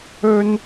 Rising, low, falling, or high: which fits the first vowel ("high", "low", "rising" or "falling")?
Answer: high